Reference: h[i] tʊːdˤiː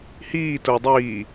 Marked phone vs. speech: incorrect: iː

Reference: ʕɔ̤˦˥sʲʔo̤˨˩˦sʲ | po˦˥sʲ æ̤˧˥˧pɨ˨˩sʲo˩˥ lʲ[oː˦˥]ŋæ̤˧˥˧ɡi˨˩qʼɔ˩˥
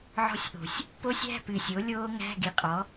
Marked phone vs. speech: correct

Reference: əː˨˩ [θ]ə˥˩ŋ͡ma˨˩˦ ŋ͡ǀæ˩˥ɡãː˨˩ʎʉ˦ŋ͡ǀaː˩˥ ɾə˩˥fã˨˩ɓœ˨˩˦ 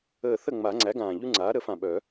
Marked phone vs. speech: correct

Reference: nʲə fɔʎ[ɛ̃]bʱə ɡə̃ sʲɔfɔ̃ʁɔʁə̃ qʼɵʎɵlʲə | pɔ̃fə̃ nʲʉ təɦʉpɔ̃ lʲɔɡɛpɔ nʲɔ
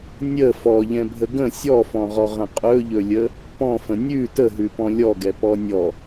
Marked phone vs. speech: correct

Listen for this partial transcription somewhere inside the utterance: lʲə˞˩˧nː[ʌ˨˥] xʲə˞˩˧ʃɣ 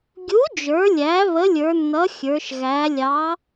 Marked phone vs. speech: correct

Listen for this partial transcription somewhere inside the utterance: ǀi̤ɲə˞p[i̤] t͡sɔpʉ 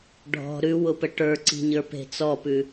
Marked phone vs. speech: incorrect: e̤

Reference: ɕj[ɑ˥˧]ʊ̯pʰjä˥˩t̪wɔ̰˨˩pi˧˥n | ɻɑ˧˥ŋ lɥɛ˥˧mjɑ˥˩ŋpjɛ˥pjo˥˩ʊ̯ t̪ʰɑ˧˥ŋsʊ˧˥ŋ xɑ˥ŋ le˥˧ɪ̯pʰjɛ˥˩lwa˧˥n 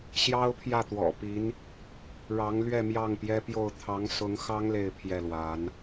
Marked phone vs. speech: incorrect: ɑ˥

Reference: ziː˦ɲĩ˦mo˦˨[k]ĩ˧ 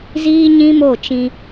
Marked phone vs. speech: incorrect: t͡ʃ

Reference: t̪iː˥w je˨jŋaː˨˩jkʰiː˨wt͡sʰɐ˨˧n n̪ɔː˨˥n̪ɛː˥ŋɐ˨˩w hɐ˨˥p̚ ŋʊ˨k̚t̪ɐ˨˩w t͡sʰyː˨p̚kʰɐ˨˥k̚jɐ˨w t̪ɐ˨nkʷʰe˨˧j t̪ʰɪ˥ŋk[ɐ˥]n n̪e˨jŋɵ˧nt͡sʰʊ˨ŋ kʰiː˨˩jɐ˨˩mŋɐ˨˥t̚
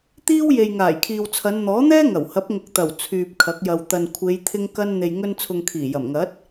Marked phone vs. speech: correct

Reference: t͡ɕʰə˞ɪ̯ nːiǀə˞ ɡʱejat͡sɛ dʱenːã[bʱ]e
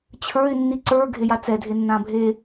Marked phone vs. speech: correct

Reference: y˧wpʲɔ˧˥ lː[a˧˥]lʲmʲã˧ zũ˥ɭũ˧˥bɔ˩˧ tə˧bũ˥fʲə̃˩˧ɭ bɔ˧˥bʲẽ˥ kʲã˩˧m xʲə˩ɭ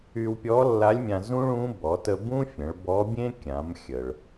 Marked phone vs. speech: correct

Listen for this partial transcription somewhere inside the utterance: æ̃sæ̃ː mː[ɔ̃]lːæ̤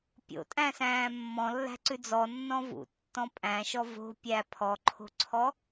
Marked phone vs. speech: correct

